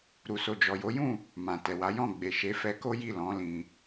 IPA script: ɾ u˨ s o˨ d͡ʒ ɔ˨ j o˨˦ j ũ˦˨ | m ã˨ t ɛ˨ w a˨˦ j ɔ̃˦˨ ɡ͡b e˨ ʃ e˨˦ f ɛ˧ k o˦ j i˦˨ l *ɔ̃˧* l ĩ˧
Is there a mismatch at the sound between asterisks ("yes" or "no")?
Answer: yes